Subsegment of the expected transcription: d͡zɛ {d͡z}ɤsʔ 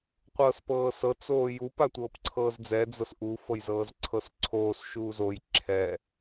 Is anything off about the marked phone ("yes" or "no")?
no